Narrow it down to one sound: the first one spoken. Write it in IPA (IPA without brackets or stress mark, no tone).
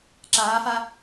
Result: ǁ